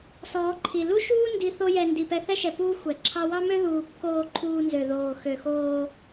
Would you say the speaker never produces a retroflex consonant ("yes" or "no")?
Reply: yes